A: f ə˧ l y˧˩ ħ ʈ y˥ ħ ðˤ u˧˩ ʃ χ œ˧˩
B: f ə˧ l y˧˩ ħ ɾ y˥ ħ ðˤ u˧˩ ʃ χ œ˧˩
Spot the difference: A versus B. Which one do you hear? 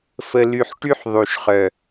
A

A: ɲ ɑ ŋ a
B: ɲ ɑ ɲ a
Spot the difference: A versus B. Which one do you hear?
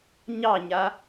B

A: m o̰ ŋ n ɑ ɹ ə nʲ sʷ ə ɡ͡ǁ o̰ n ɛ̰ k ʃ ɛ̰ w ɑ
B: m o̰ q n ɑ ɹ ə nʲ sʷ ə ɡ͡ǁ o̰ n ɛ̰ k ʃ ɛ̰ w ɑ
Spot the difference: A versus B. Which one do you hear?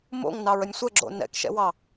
A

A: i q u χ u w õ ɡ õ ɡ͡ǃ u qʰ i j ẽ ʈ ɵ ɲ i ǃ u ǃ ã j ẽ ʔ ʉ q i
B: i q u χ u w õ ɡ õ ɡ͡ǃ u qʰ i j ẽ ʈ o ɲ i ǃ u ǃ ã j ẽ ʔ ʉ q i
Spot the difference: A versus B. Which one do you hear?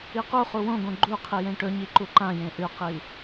A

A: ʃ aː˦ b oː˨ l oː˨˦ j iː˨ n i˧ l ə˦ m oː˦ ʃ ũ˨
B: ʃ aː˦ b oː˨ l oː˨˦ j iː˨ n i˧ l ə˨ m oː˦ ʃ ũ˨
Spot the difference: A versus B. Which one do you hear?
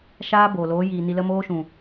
A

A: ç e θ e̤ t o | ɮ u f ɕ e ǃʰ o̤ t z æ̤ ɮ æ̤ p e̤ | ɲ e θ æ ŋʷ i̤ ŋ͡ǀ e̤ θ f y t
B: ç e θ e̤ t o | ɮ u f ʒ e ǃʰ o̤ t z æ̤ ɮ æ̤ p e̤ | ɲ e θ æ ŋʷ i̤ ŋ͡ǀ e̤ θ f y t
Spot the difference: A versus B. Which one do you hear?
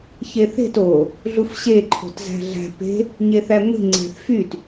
A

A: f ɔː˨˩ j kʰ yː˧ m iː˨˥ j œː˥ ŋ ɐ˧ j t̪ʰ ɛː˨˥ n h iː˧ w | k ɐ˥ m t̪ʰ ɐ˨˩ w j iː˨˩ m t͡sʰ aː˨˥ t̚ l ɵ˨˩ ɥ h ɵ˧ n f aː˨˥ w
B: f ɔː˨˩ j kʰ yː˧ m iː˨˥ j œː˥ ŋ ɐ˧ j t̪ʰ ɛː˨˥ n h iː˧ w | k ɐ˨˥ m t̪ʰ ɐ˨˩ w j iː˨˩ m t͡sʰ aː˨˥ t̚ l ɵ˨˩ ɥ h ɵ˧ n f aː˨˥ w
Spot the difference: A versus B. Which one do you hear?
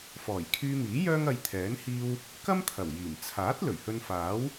A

